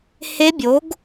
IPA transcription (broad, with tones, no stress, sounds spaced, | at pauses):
h e˦˥ bʲ o˨˥ ɡ